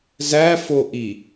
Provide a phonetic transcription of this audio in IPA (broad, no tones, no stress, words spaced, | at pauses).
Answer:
zæfoʔi